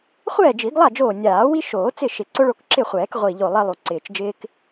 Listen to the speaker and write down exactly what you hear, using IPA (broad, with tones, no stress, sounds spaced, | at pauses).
χʷ ɛː˥˩ d͡ʒ i˨˩˦ ɡ lˠ a˥˩ d͡ʒ oː˧˩ nʲ aː˨˩˦ w i˦ ʃ oː˨˩˦ t͡s ɪ˥˩ ʃ ɪ˨˩˦ ǀ ʊ˦ ɭ o˥˩ k ǁ ɪ˥˩ χʷ ɛː˨˩˦ k ʁʷ i˧˩ ʎ o˧˩ lˠ ɛ˦ lˠ u˧˩ ǀ ɪː˧˩ t͡ʃ d͡ʒ ɪː˦ k